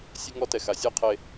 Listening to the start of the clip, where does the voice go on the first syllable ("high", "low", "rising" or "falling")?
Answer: high